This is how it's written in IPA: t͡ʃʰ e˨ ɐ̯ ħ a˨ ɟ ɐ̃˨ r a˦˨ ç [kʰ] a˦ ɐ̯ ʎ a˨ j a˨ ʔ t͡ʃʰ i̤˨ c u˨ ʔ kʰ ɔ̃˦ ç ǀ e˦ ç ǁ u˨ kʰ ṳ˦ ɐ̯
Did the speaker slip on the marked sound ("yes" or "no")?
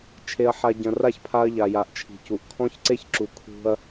yes